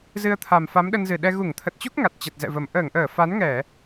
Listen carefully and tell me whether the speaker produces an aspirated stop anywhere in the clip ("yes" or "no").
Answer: yes